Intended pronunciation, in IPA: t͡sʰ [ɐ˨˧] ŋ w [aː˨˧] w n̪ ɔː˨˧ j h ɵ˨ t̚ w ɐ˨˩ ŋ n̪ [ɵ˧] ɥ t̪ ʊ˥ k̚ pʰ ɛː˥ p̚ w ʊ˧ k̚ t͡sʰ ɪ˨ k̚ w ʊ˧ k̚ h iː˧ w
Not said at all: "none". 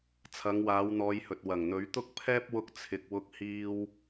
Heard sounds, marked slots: ɐ˨˧, aː˨˧, ɵ˨˥

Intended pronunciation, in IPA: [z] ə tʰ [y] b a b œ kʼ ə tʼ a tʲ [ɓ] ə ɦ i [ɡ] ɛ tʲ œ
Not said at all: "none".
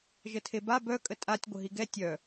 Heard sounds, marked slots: ʒ, e, ɡʷ, ɡ

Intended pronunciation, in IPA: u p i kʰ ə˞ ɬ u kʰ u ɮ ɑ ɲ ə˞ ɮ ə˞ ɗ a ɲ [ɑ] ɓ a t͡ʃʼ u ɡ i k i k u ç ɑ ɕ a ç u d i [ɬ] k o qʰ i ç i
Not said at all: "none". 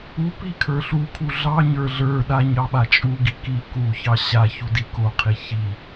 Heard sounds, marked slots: ɑ, none

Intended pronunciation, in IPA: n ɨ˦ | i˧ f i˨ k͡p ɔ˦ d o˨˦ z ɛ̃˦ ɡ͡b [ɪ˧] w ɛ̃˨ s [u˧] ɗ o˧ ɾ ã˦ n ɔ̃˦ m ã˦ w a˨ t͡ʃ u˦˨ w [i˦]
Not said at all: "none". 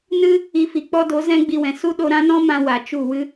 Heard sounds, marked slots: i˧, u˦, ɨ˦

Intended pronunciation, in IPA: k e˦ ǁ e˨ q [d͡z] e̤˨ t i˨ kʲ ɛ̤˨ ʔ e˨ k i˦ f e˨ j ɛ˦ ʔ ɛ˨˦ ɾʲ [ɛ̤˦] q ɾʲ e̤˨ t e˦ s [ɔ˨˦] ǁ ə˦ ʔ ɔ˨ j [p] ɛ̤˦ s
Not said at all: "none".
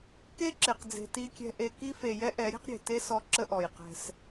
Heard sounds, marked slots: d͡z, ɛ̤˦, ɔ˦, q

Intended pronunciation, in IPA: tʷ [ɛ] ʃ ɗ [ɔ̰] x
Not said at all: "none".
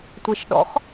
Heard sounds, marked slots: e, ɔ̰

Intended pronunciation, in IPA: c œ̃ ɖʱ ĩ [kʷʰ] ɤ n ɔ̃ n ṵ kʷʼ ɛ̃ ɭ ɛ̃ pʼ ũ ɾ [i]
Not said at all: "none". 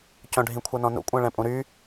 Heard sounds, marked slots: kʷʰ, y

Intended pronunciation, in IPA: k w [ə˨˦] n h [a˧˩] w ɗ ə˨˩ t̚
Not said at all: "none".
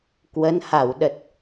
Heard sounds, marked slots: ə˨˦, a˧˩

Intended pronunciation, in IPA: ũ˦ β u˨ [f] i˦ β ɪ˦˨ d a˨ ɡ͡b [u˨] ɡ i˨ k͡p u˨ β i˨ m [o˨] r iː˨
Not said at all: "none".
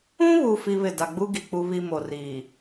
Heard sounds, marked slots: f, u˦, o˨

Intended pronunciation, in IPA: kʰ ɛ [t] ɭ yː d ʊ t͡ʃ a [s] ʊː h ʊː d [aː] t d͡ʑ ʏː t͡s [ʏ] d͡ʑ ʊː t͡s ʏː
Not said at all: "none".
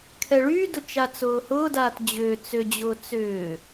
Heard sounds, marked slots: none, t͡s, aː, ʏ

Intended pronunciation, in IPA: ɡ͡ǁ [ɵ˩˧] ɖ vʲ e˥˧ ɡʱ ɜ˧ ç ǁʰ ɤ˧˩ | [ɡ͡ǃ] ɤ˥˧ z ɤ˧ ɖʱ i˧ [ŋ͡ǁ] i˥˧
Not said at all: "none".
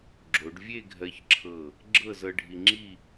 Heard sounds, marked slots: o˩˧, ɡ͡ǁ, ŋ͡ǁ

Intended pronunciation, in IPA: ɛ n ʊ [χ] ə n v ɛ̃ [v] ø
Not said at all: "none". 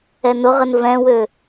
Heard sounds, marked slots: ʁ, w

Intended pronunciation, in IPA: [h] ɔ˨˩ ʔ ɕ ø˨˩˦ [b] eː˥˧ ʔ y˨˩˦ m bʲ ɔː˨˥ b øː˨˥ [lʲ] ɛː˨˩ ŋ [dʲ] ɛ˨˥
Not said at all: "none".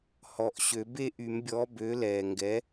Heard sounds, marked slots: h, b, l, ɡ

